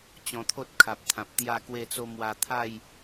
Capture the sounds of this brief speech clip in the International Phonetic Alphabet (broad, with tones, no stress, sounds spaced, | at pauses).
t͡ɕ ɔ̃˧ t̪ʰ o˦ t̚ kʰ a˨ p̚ t̪ʰ ã˨ p̚ t̪ j a˥˧ k w e˥˧ t͡s o˦ m w a˧ t̪ʰ a˥˧ j